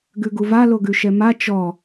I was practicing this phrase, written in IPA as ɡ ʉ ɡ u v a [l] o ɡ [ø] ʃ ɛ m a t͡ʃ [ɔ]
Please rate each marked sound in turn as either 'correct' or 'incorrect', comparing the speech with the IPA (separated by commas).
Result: correct, incorrect, correct